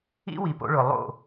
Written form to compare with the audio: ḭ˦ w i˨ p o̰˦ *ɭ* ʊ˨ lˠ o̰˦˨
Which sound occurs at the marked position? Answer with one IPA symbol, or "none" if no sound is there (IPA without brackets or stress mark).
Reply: ɭ